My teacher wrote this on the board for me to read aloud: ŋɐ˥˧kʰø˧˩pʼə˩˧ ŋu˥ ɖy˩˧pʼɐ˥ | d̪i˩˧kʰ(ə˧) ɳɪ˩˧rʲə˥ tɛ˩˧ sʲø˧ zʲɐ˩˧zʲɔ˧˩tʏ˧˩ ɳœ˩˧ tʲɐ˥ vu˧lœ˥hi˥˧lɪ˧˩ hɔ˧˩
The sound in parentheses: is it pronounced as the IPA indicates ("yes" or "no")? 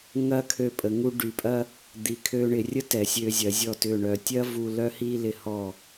no